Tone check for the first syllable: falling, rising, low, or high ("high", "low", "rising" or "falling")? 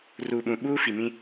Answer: low